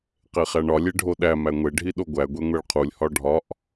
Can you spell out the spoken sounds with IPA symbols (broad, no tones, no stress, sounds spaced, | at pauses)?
q e χ æ ɳ ɒ lʲ e ɖʱ o ɗ æ m æ ŋʷ e ɖʱ i ɗ o ɡʷ æ ɡʷ e ŋʷ e ɭ qʰ u lʲ h ɒ ɖʱ ɒ ʔ